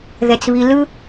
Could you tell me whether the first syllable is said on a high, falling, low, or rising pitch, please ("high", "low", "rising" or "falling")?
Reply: high